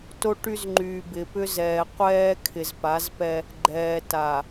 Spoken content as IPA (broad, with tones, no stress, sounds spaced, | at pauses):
t o˦ ʈ y˦ z ŋ͡ǃ yː˨ b ɪː˨ p ʏ˦ z ɛː˨ qʷ ɛː˦ kʰ ɪ˨ z p a˨˦ z p ɛ˦ | ɡ͡ǃ ɛː˨ t a˨